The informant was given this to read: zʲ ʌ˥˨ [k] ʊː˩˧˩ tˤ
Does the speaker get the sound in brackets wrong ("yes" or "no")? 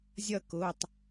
no